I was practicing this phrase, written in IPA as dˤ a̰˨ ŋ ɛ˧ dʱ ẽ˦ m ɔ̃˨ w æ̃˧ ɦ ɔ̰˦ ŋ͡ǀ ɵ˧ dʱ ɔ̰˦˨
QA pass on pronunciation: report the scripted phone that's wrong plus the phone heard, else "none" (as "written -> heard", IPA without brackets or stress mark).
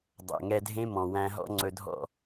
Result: a̰˨ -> æ̰˨